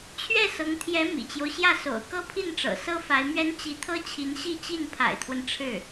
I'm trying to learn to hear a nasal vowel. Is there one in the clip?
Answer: no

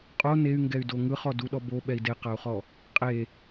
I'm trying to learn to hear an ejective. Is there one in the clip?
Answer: yes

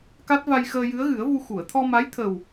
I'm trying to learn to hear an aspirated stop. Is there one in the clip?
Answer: yes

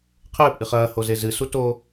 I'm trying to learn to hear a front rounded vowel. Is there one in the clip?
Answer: no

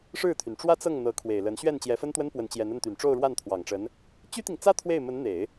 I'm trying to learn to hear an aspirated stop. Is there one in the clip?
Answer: yes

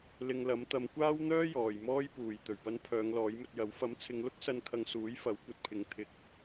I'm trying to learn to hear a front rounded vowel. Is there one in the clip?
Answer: yes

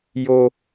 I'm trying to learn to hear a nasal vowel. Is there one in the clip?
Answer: no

